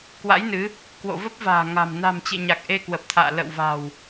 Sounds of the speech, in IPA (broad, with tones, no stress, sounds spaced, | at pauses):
k w a̰˧˥ j n ɨ˨˦ | k w o̰˧˨ v ə˦˥ p̚ v a̤ː˨˩ ŋ a̤˨˩ m n a̤˨˩ m t͡ɕ ḛ˧˨ ɲ a˨˩ k̚ ʔ e˧ k w ə˨˩ p̚ t̪ʰ a̰ː˧˨ l ə̰˧˨ w v a̤˨˩ w